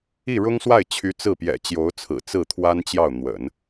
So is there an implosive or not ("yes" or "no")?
no